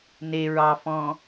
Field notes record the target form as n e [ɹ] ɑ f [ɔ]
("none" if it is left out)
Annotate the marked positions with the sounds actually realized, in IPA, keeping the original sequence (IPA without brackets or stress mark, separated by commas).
ɹ, ɔ̃